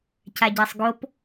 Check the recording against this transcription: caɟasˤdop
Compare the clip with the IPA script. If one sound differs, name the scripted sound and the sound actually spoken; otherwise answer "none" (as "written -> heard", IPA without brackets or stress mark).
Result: d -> ɡ